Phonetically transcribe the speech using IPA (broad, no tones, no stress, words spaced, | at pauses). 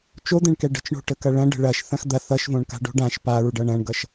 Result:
t͡ʃod̪ɛ̃ɳkɛ ɖə̤t͡ʃɳo̤ʈə kɐɭɐ̃ɖə̤ ɭɐʃ θɐ̃xd̪ɐθ ʌʃvõɳka̤ ɖo̤ɖãʃ paɹɖʌ ɳɐ̃ɳɡʌʃ